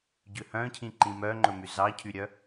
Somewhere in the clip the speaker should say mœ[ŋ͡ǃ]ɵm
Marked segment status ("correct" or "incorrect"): correct